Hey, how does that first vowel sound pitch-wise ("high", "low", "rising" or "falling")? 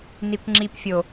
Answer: low